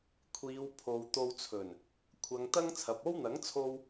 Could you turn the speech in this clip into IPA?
kʷʰ iː˨˧ w pʰ o˨ w t̪ o˧ w t͡sʰ ɵ˨˩ n | kʷʰ ɐ˨˧ ŋ t̪ ɐ˥ ŋ t͡sʰ ɐ˨ p̚ o˥ w n̪ ɐ˨˥ ŋ t͡sʰ o˧ w

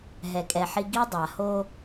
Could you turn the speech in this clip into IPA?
ɦ ɛ˨ kʼ ɛ˨ ħ i˦ ɡ i˦ dˤ a˨ h o˦

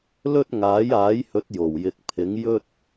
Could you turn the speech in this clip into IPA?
l ɵ˥ t̚ ŋ aː˨˥ j aː˨˥ j h ɵ˨˥ t̚ j o˨˩ w j ɪ˨ k̚ pʰ ɪ˨˥ ŋ j ɵ˥ t̚

